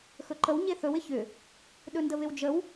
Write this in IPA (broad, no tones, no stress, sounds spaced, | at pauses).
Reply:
x ɵ ǃ ə w ɲ e θ ɵ w ɪ ç ʏ | ɗ ɵ n d ə β ɪ w d͡ʒ ə w